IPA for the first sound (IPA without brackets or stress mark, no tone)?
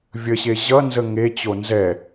vʲ